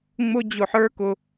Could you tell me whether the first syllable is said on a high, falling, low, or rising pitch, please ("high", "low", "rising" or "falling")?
high